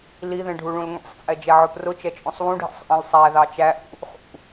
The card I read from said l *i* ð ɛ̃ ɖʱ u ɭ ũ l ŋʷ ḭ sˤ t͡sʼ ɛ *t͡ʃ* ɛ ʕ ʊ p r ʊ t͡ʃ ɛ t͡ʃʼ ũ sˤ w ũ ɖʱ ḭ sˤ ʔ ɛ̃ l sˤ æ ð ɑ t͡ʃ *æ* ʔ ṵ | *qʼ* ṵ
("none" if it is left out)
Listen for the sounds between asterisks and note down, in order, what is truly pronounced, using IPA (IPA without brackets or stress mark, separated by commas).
i, d͡ʒ, æ, χ